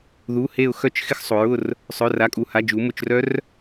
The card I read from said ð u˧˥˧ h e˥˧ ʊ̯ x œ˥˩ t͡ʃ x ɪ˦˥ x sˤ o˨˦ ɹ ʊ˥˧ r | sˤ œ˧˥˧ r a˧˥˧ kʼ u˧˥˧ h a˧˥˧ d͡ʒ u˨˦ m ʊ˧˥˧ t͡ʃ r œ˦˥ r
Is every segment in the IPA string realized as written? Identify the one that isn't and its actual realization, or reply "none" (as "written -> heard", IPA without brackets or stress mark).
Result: none